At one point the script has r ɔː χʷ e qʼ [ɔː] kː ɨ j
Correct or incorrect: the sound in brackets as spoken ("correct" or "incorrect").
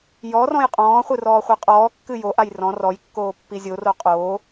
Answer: correct